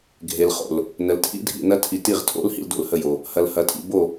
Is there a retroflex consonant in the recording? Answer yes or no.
no